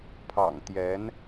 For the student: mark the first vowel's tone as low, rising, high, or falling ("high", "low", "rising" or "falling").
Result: low